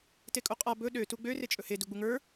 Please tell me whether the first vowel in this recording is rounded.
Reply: no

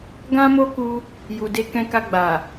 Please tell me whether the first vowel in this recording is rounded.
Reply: no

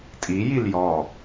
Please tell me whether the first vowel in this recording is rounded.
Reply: no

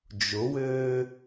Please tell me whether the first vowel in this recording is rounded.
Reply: yes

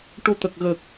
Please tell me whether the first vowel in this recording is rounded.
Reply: yes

